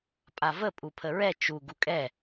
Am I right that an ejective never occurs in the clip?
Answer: no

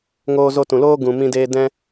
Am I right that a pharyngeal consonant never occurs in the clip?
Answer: yes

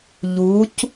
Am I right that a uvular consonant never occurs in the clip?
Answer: yes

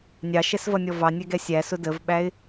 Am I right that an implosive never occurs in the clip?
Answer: no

